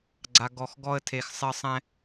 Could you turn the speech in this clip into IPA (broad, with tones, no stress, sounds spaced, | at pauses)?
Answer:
ɡ͡ǀ a˩ ɡ ɔ˩ x ɡ ɔ˧ ə̯ tʰ e˩ x sˤ ɪ˧ ə̯ sˤ ɛ̃˧